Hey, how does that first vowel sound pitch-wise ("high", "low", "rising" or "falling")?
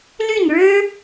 falling